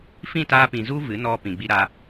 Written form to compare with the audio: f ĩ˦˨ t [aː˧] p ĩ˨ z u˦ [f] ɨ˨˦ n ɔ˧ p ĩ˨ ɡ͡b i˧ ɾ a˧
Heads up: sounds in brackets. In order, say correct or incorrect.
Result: correct, incorrect: v

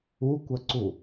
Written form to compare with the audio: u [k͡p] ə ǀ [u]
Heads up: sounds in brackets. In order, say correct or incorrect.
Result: incorrect: kʷ, correct

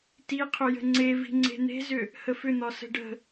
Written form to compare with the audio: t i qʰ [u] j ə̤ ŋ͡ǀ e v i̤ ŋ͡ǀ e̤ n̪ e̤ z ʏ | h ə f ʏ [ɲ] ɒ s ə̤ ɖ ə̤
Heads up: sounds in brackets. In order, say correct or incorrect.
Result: incorrect: ʏ, incorrect: n̪

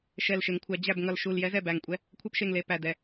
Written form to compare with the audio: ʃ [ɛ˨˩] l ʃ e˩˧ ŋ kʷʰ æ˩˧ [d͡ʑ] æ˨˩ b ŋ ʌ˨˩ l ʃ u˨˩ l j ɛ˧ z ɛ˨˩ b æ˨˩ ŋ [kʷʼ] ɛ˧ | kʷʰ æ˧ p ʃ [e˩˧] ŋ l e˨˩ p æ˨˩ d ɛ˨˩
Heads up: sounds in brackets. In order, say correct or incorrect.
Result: correct, correct, correct, incorrect: e˨˩

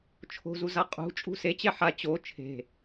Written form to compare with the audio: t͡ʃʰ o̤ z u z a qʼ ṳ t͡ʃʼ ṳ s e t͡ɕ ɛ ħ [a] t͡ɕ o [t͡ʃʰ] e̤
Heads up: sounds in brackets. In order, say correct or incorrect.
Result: correct, correct

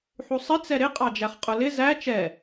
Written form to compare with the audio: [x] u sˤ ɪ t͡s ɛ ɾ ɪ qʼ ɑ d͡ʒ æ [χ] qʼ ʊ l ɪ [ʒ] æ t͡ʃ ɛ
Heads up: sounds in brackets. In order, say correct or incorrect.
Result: incorrect: ħ, correct, incorrect: z

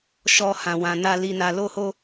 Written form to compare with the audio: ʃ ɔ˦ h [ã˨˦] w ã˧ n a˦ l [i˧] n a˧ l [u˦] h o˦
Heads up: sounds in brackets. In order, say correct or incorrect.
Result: incorrect: ã˧, correct, incorrect: o˦

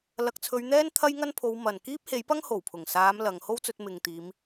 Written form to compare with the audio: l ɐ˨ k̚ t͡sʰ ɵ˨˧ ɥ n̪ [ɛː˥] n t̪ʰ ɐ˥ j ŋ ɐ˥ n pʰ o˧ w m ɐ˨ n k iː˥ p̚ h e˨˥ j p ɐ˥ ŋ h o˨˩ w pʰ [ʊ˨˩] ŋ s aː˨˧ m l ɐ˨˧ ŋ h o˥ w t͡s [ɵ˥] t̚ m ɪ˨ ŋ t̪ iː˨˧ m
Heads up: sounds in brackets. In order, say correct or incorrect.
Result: correct, correct, incorrect: ɵ˧

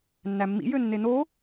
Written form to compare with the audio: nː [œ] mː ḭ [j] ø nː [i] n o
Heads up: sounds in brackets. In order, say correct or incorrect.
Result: incorrect: æ, correct, incorrect: e

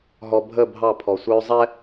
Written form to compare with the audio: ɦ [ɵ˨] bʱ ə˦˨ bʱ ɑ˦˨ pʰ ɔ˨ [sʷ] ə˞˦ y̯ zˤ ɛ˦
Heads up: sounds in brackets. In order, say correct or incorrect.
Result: incorrect: ɔ˨, correct

